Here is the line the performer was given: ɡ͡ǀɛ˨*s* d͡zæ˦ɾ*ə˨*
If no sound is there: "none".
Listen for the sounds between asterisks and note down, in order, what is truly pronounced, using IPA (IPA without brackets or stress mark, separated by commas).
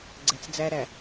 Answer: t͡s, æ˨